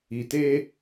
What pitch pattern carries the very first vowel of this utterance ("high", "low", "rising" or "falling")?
low